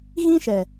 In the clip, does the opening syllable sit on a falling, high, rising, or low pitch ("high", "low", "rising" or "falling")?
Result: high